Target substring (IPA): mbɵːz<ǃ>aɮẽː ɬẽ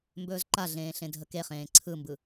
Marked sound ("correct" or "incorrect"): correct